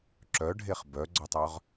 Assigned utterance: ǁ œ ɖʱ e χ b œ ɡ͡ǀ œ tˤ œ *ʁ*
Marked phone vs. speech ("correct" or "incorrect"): correct